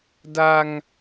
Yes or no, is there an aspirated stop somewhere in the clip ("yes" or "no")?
no